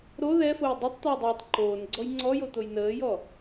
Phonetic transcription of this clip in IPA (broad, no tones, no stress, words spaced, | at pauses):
ɾo ðɛfoj dˤɯtˤt̪əː dˤɯːtˤǃoːnɡ͡ǀɔj ŋ͡ǀɔjo t̪ojnəːjɔ